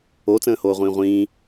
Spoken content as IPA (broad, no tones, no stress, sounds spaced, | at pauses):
o t͡s ə̃ː h oː ʁʷ ĩː ʁʷ ĩː